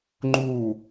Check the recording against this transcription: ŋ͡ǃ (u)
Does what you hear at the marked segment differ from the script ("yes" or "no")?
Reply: no